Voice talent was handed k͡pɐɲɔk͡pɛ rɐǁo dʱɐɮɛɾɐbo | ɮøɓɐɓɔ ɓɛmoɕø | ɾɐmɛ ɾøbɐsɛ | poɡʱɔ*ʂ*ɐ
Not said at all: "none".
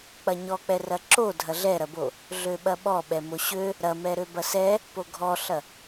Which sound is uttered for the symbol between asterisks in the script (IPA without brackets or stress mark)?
ɬ